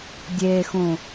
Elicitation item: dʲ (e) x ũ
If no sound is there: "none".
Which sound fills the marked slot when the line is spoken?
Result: e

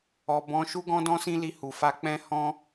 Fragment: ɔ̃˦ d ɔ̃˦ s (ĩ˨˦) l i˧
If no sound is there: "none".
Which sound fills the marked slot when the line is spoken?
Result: ĩ˦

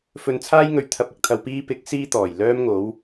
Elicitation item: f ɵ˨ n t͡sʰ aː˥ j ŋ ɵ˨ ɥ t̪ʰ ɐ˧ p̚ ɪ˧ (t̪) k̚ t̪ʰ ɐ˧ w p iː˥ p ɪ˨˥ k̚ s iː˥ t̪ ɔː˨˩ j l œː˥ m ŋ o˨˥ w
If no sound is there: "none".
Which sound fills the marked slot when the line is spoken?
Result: none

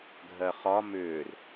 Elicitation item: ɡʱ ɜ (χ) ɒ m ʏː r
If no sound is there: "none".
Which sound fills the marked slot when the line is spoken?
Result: χ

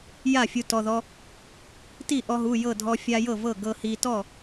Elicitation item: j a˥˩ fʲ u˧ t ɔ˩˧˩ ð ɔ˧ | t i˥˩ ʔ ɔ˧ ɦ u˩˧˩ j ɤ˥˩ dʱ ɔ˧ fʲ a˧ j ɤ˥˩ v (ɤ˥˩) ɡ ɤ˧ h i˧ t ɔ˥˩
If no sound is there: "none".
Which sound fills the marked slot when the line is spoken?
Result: ɤ˥˩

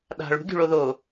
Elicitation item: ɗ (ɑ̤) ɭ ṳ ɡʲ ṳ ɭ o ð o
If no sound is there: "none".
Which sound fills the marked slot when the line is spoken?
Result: a̤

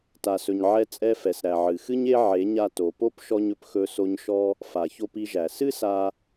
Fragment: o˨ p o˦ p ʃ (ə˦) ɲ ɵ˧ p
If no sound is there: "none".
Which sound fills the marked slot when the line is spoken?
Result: ɔ˦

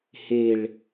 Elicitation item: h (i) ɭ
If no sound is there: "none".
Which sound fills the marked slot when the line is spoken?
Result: e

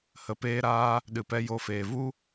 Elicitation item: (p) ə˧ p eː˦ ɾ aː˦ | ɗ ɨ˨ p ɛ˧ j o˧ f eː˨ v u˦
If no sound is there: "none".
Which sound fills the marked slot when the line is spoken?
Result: h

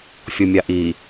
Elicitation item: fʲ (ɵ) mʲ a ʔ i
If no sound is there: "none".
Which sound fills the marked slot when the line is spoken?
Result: o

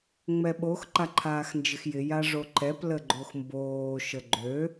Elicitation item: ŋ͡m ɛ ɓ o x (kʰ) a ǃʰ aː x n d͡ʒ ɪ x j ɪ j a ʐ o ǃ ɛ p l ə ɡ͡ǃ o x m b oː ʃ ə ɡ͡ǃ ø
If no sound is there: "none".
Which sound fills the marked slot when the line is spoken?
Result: ǃ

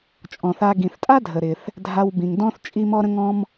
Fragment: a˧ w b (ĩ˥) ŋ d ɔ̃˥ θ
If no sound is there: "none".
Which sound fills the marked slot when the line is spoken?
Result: ĩ˩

